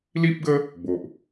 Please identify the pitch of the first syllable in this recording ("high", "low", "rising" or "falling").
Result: high